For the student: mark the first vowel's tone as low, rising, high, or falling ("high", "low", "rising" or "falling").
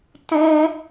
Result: high